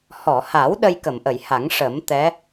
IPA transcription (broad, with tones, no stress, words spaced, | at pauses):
hɔ˨˩˨ha˨˩˦w ɗə˧jkə˨˩˨mʔə˨˩˨jha˨˩˦ŋ ʂə˨˩˦m t̪ɛ˧˥